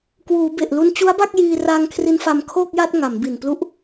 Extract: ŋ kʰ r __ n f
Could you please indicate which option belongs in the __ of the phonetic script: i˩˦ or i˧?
i˧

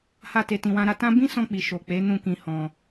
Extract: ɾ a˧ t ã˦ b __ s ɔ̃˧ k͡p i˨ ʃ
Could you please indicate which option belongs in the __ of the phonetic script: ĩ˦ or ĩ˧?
ĩ˦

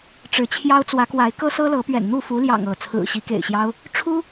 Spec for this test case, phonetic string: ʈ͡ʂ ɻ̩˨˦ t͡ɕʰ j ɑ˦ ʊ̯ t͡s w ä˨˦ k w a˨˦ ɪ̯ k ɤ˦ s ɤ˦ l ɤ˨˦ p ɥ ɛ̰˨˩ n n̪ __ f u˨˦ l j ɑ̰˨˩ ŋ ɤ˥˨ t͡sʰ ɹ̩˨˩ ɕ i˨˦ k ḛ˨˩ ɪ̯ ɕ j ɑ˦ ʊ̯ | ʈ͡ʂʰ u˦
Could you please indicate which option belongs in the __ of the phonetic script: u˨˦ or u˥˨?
u˥˨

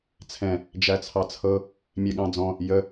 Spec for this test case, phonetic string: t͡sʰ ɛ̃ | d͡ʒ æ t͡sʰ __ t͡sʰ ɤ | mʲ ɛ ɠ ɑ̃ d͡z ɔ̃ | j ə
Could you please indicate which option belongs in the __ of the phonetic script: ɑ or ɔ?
ɑ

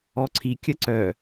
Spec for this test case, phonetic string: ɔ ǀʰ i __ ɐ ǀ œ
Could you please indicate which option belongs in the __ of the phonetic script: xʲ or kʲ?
kʲ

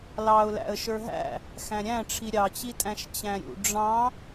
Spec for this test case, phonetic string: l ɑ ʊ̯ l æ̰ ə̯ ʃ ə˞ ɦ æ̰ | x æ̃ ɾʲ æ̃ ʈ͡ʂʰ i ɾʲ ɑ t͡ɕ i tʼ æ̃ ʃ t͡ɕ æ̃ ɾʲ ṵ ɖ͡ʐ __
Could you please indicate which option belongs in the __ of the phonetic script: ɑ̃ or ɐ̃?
ɑ̃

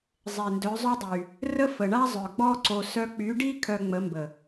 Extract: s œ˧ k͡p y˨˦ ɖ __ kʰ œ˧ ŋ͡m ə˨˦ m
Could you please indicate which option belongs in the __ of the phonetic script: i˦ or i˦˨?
i˦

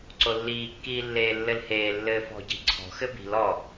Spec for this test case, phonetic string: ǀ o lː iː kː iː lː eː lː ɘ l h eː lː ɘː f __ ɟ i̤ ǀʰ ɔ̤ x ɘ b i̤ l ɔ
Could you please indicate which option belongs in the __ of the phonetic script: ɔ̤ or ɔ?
ɔ̤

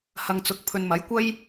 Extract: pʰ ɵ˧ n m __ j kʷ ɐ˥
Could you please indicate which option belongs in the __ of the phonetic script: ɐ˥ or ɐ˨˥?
ɐ˨˥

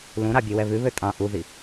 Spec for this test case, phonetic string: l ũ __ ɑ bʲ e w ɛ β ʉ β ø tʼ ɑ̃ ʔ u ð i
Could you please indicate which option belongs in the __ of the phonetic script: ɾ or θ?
ɾ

